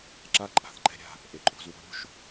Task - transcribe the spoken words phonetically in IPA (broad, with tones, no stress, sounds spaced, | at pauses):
ǁ a˦ ǃʼ a̤˨ θ ǃ ɛ̤˦ ɾʲ a̤˦˨ | ʔ e˨ ǃʼ o̤˧ z w o̤˦ ɾʲ o̤˦ ʃ